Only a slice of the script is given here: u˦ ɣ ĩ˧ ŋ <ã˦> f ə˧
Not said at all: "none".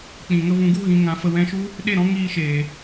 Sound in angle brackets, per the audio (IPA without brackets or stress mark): ã˧